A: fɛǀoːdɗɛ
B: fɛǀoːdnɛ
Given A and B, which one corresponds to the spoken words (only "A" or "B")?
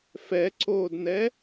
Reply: B